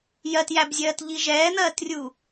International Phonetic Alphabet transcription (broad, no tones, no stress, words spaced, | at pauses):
jɜtjæbzʲɜːtʎi ʒɛːn̪ɜːtrʲuː